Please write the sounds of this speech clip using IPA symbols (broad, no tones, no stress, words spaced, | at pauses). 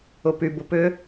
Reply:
ʊpy bʊpʏ